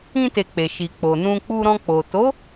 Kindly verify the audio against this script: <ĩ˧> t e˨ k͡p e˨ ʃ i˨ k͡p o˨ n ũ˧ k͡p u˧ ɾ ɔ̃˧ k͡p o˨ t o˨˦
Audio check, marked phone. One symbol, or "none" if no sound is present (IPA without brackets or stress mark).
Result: ĩ˧